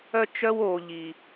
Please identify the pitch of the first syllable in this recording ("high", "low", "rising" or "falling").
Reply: high